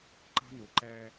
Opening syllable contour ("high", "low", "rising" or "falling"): high